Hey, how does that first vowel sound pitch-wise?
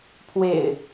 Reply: low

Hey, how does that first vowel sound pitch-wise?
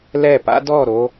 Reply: falling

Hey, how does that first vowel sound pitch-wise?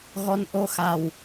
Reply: rising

